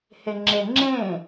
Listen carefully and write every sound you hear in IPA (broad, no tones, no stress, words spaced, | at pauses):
heŋ͡ǁe ŋ͡ǁẽ